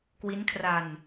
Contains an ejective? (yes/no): no